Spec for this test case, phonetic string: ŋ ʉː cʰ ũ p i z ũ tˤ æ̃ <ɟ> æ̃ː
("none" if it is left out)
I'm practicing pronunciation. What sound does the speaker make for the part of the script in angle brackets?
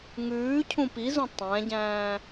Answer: ɟ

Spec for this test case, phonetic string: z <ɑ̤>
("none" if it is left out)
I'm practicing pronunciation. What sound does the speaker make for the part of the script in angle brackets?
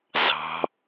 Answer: ɑ̤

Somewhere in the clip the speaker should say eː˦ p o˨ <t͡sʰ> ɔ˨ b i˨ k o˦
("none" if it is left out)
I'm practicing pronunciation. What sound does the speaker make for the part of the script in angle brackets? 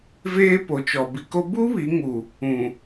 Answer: t͡ʃ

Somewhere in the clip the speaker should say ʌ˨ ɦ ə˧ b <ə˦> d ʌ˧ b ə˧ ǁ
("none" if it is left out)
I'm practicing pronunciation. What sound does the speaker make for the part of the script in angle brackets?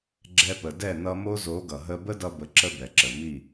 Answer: ə˦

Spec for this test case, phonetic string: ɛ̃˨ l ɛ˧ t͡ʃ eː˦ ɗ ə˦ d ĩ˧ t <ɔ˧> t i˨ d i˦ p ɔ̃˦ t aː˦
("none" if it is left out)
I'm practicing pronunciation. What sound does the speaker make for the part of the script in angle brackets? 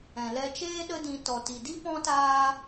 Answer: ɔ˨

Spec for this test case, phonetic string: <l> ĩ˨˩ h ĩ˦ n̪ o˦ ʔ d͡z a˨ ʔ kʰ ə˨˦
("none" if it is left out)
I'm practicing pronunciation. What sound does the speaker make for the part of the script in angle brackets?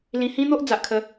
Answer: l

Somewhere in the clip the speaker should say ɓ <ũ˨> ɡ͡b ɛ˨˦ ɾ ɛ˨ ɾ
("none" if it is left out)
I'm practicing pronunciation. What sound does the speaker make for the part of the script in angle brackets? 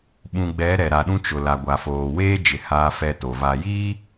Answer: ũ˨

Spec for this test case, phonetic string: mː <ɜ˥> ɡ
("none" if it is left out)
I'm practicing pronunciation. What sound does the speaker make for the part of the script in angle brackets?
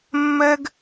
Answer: ɜ˥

